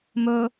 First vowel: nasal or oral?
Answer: oral